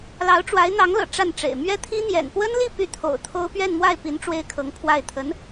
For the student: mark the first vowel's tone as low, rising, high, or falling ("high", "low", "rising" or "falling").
rising